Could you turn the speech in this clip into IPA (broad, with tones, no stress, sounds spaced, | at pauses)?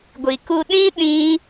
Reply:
ɡʷ i˨ k u˧ ɗ ĩ˦ ɗ ĩ˦